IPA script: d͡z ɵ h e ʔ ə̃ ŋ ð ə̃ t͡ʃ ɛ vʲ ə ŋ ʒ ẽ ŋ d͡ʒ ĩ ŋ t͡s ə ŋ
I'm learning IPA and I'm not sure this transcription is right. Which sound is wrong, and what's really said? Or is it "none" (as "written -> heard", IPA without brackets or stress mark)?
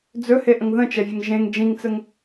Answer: none